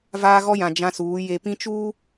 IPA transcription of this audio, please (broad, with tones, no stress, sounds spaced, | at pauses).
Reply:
v aː˦ ɣ ɔ˦ j ã˨ d͡ʒ ã˦ s uː˨˦ j e˨ p ĩ˦ t͡ʃ uː˦